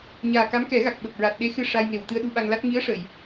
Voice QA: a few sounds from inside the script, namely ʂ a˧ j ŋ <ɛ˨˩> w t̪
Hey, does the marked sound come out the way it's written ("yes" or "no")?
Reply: no